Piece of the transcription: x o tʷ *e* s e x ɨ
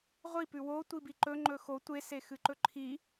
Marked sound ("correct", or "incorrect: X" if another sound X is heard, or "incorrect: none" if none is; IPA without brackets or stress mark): correct